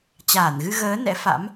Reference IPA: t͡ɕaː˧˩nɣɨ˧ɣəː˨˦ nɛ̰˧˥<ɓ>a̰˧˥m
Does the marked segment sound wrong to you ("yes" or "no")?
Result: yes